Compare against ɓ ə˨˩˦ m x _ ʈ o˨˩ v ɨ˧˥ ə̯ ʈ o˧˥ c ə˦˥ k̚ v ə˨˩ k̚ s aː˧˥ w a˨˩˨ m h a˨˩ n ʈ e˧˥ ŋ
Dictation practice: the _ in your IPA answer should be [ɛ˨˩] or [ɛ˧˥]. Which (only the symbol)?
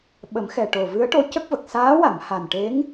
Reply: ɛ˨˩